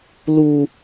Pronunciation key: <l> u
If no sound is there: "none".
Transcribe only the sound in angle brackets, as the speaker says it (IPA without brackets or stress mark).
l